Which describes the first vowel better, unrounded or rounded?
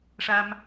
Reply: unrounded